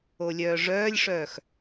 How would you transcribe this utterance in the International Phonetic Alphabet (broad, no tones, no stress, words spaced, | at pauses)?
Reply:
olʲœːʐœːlʲʂœːx